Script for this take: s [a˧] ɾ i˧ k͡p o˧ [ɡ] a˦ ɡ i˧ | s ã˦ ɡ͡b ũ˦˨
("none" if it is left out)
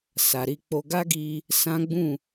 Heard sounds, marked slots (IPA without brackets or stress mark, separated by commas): a˨, ɡ